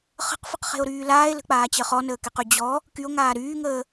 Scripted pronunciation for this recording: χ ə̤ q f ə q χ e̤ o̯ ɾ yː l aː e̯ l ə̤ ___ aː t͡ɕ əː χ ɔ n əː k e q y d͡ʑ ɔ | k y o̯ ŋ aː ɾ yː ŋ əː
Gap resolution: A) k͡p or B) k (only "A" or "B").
A